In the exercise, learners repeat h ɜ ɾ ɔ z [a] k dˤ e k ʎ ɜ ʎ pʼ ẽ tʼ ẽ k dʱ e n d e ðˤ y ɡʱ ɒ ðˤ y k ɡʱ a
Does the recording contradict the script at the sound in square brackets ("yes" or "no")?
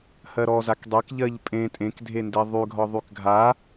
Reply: no